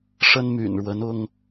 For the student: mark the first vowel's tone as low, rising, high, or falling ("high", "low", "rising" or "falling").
high